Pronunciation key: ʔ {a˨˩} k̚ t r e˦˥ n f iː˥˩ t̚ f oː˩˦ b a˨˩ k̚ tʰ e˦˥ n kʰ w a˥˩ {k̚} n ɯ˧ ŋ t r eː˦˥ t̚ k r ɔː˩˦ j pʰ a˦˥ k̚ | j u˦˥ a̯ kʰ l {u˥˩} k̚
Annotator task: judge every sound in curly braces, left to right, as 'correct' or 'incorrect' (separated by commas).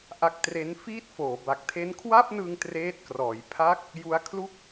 incorrect, incorrect, correct